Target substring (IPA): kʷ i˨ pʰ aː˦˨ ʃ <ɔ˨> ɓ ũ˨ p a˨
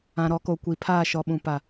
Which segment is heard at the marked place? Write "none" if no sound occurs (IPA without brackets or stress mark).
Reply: ɔ˨